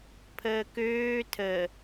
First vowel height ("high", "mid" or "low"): mid